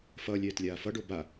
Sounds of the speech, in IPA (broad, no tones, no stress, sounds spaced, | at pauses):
f ʌː lʲ ɛː t lʲ aː f ʌ ɖ o b a